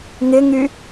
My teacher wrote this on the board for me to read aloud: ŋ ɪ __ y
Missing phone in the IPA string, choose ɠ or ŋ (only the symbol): ŋ